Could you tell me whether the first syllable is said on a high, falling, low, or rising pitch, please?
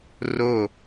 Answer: falling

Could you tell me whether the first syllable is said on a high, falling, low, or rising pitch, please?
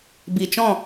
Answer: low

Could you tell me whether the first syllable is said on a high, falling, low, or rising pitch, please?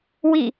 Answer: falling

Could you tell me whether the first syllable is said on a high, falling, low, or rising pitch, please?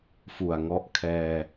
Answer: low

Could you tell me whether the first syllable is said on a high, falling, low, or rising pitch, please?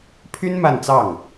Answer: high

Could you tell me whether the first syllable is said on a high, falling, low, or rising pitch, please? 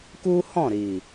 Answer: high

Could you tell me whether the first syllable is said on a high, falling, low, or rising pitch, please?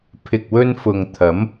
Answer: low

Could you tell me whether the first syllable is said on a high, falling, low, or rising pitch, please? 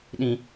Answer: low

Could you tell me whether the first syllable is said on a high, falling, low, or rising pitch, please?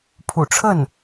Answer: low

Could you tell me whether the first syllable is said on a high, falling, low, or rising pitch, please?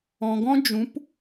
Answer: low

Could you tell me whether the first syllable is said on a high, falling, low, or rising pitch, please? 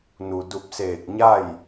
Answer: low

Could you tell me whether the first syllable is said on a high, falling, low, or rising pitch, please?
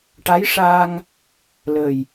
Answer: rising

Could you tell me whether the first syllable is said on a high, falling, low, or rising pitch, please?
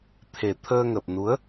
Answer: low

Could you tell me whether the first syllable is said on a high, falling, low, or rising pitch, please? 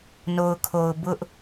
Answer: low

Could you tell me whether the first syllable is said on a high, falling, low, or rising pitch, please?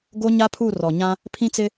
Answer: high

